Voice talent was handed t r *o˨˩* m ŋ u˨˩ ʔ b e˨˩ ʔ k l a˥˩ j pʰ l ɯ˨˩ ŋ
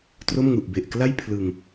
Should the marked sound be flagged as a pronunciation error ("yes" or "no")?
yes